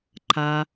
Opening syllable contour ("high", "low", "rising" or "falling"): low